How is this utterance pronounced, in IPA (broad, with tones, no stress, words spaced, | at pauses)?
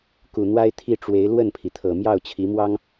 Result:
ku˨˩n̪wa˥ɪ̯ t̪ʰi˥˩ʈ͡ʂwe˧˥ɪ̯ lwə˥˩npʰi˩t̪ʰɤ˨˩ mjɑ˥˩ʊ̯t͡ɕʰi˧˥mwɑ˥ŋ